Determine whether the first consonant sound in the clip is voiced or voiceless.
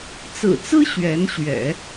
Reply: voiceless